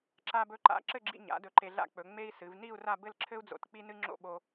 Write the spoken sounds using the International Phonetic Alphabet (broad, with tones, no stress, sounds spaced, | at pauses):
ǁ a˧ b ɵ˧ ǃ a̰˧ ǁ ɘ˥˧ ɡ͡ǁ ḭ˧ ɲ a̰˩˧ d ɵ˧˩ ǃ e˧ ɮ a̰˥ k͡p ɵ˩˧ ŋ͡m e˥ i̯ s ɨ˩˧ v n i˥˧ u̯ r a˥˧ b ɘ˥˧ l ǁʰ ɘ˥ u̯ d͡z o̰˧˩ t k͡p i˥ n ɨ˥ ŋ͡ǁ o̰˥˧ ɓ o˧